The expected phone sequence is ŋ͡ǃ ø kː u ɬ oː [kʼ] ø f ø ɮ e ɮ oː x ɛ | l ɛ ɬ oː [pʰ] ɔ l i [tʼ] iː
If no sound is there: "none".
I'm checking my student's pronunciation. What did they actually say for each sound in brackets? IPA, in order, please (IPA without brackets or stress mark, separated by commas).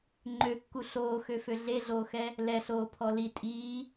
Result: x, pʰ, tʼ